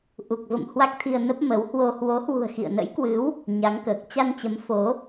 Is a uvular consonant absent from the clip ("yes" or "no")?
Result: yes